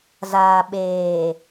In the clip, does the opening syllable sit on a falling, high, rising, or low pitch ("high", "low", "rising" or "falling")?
low